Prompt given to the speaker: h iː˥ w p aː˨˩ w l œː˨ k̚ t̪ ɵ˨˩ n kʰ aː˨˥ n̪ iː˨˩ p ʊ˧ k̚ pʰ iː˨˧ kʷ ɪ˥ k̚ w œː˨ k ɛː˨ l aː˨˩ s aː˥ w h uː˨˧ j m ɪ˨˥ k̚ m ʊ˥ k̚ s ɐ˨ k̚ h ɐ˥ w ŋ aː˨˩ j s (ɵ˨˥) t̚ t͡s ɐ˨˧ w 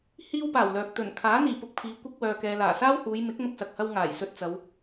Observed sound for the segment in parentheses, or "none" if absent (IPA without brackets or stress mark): ɵ˧